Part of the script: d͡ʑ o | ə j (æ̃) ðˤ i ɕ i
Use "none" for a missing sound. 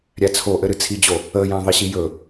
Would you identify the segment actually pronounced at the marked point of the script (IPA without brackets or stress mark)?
æ̃